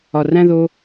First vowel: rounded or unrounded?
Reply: rounded